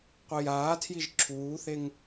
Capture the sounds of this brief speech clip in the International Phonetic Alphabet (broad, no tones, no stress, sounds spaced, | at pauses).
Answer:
qʷ i j aː tʰ j i ʒ ǁʰ uː θ e ŋ